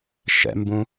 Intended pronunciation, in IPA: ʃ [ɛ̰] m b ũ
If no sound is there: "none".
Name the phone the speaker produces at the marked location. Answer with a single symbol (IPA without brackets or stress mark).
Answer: ɛ̰